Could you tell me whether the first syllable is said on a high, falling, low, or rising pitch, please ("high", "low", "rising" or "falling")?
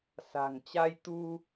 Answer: low